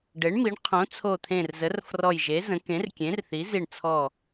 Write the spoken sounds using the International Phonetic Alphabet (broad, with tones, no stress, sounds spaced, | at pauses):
ɖ e˩˥ ɳ m i˩˥ ɳ qʰ õ˩˥ t͡sʰ o˧˩ t̪ʰ ẽ˧˩ r z ə˩˥ r f r ɔ˧˩ j ʒ e˩˥ z ə̃˩˥ k ẽ˩˥ r kʲ ẽ˩˥ r θ i˩˥ z i˧˩ ɳ t͡sʰ ɔ˧˩